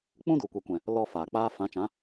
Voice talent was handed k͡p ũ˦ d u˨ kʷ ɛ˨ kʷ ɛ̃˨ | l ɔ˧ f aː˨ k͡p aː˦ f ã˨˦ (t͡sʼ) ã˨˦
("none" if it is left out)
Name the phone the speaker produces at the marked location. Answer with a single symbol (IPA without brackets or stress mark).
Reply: t͡ʃ